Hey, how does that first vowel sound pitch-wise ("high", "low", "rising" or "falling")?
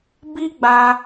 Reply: high